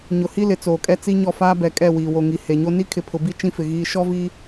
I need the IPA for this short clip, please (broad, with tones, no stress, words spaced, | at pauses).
ɲʊ˨hi˦ lɪ˨t͡soː˨kʼɛ˦ t͡si˦ɲɔ˦˨ faː˦bɛ˨kʼɛ˦˨ wiː˨wo˨ŋi˨ he˨ɲo˦ ni˦kʰɪ˨pʰʊ˨bi˦ t͡ʃĩ˦fɪ˨ɣiː˦ ʃɔ˦vi˦